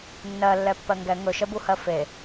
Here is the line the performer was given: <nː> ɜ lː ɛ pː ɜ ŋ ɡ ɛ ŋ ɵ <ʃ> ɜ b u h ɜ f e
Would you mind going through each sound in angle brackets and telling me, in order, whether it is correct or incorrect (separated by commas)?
correct, correct